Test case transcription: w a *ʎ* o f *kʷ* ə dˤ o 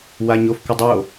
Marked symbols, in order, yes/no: no, yes

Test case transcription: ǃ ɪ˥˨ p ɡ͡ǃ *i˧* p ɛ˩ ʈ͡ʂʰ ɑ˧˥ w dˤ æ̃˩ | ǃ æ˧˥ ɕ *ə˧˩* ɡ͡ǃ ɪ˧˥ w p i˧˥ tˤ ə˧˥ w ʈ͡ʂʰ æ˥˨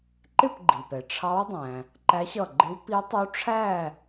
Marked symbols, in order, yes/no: no, no

